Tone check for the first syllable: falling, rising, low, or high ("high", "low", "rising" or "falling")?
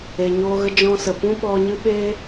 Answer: low